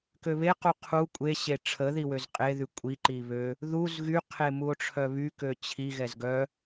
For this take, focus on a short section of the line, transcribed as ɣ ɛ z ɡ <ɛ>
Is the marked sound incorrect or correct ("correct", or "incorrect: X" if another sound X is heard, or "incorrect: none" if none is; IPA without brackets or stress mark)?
incorrect: œ